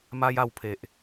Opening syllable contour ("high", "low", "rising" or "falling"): high